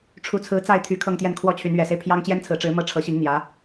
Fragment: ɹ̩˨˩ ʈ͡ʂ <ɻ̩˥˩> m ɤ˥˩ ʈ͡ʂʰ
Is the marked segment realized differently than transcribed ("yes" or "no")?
yes